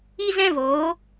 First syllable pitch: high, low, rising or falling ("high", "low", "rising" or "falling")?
high